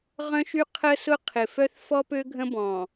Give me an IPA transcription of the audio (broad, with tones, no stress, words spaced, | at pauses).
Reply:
ʁœ̃˦ʃy˦ qʰə˦ sʊ˦qʰɪ˨fœ˦θ fɔ˦pø˦ ɡʱə̃˦bɔ̃˨